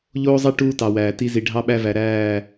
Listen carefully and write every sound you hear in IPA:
ʎoː˦zˤɛ˦ ʈuː˦tɑ˨wæː˨ ti˦zi˨ ɖʱɑ˦ɓæ˦væ˨ ɾæː˦˨

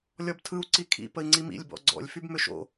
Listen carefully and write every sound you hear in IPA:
lʲɔbtʰɯu̯ ǀikʰḭ pəi̯ŋ͡ǀimḭlʲ bɔ̰ɡ͡ǀɔ̰lʲ fybmʏʃo̰

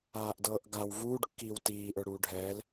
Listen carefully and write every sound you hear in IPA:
aːʔdɤːʔɡaw vuːɖkːiːw tiːʔə˞ɽuː ɖʱɛːl

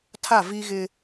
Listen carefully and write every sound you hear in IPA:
tʰa˦˨ vi˦ɣɪ˦

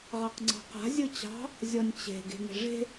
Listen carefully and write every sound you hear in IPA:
ʁɑqŋ͡ǀɑ̤qa̤ zʲɯt͡ɕɑ̤ | zʲɔnʲt͡ɕe̤ ɡe̤ŋe̤ʐe̤

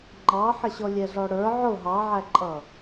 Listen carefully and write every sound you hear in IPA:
ŋ͡ǃɑħəɕɔ lʲɛɮɔɽə˞ ʕʊ ɦɑʕæǃʼʌ

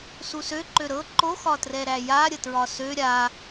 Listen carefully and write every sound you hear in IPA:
susø ǃøɾɤ ǃo xɒtrɛɾæja ɾʲətɹɒsø ɾʲa

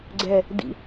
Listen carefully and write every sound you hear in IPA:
ɡ͡ǀɛ | dḭ

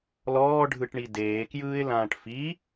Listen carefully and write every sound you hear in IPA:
lɔːɖʱɯʈɳi deːkjɯːɪ̯lãːʈ fi

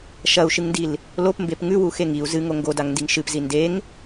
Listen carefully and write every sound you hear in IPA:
ʃɐu̯ʃɨŋndil | lopmbep ŋʉwuxe ŋiu̯ zɨŋo ŋɡodaŋndiŋ ʃɨpzi ndeŋ

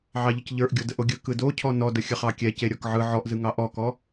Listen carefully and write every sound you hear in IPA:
ʕɑʎəcʎə˞ʔ ɡʲodəʔoɡʲɯ kɯdocʰɔ nɔdə xʲəχɑkʲɛ ceɾʲɔkʕɯ ʕɔʔzɯŋɑ ʔɔkɔ

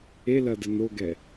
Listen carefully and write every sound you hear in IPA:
elɐ dənoɡɛ

